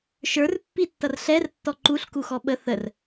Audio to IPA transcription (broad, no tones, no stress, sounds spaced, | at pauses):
ʃ ə˞ r pː i tː ʌ r ɬ ɛ r tː ɔ ǃ u ɬ k u x ɔ ɓ ə θ ə r